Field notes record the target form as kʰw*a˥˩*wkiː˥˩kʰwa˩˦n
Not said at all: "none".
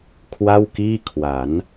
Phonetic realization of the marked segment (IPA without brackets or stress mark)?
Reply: a˥˩